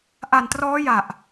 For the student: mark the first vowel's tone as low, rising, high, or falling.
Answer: low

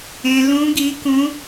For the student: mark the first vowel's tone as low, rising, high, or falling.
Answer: low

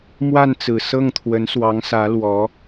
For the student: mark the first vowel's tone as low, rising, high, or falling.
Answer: falling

